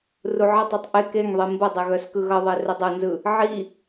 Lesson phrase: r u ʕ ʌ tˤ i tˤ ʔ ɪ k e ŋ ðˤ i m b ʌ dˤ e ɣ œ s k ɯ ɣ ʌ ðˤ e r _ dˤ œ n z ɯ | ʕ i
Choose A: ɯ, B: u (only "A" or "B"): B